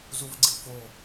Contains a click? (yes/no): yes